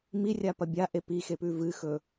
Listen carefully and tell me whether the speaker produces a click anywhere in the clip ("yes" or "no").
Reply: no